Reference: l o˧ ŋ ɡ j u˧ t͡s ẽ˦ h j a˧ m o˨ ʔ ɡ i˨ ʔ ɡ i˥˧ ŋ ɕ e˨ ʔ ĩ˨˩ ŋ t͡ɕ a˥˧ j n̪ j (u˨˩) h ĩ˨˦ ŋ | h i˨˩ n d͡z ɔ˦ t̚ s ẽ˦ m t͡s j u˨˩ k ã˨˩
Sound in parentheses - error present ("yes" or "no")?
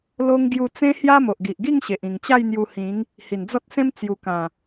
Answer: yes